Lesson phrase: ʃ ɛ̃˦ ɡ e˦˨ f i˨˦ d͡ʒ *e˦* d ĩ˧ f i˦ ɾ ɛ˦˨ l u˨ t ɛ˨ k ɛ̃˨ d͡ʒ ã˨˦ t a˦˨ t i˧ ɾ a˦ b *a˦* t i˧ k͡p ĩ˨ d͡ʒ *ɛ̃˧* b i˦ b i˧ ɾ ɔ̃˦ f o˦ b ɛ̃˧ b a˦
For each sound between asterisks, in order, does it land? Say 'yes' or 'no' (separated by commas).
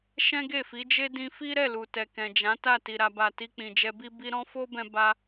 yes, no, no